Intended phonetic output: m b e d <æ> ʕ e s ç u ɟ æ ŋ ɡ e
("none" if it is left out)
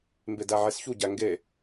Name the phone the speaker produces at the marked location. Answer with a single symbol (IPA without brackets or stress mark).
æ